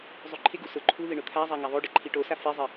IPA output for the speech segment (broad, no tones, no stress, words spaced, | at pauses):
zˤuǃʰɪɡu sʊ ǃʰuðɪ ɳʊt̪ʰazˤa ŋaðˤoɖɪ ǃʰiʈosa fezˤe